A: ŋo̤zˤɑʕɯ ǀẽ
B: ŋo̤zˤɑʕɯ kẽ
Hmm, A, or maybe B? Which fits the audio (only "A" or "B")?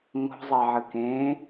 B